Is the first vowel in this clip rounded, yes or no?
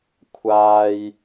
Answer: no